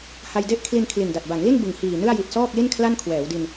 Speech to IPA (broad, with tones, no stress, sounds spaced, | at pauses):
h a˧ j d e˥˩ ʔ kʰ l i˧ n kʰ l i˨˩ n d a˨˩ t̚ b a˩˦ ŋ l i˥˩ n b ɯ˨˩ ŋ h iː˨˩ n ɯ˥˩ a̯ j i˨˩ t̚ s ɔː˥˩ k̚ l i˥˩ n kʰ l a˥˩ n kʰ w ɛː˩˦ w d i˧ n